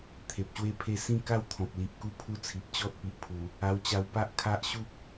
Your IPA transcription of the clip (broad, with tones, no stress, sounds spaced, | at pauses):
t̪ʰ e˨ p̚ ɕ w e˥˧ pʰ e˥˧ s ĩ˥˧ k a˥˧ w t̪ʰ ɔ̃˨ p̚ l i˨ ʔ k u˦ pʰ u˧ t͡sʰ i˨ p̚ t͡ɕ ɔ˦ t̚ p i˨ ʔ pʰ u˨˩ | a˧ w t͡ɕ a˧ w p a˦ ʔ kʰ a˦ ʔ ɕ u˦ k̚